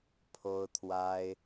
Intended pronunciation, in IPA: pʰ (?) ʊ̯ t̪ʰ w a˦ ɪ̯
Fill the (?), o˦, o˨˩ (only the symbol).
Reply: o˦